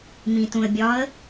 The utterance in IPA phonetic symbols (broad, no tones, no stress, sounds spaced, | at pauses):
m ĩ t ũ ə̯ bʲ ɒ ə̯